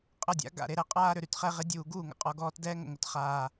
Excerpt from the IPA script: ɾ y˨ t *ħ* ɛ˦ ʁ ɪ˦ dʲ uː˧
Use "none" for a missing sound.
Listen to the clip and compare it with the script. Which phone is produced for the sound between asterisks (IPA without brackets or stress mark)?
χ